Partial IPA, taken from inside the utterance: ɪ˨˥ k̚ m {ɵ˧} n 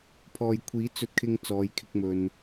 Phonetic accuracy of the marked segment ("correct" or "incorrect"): correct